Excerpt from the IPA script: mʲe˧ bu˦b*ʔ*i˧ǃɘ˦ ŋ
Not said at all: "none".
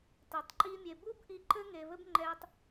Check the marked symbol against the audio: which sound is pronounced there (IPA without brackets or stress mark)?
ʔ